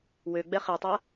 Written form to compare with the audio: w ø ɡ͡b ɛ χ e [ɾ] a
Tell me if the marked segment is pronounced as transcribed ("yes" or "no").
no